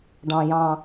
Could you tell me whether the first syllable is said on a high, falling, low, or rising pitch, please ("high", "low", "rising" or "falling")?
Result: low